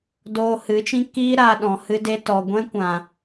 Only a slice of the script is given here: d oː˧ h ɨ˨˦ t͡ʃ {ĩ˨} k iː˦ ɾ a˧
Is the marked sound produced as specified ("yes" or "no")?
no